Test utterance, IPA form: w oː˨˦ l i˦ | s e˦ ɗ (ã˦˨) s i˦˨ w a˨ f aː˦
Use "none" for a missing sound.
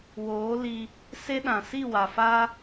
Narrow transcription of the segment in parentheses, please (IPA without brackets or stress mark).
ã˨